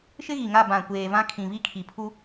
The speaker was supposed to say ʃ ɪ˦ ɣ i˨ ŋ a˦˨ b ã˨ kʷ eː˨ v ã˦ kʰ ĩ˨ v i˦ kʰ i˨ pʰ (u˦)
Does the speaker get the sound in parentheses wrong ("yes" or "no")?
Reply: no